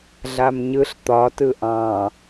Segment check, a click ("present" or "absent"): absent